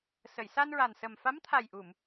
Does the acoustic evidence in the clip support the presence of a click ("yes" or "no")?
no